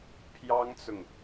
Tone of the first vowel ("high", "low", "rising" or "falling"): high